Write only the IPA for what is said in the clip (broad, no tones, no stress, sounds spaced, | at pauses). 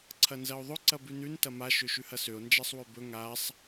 ǀʰ ɐ n z ɐ o̯ ðˤ ɵ ǀ ɐ b ʉ n ʉ n t ɐ m a ʃ ø ʃ ʉ h ɐ s ø o̯ n d͡ʒ a sˤ w ø b ɵ ŋ a sˤ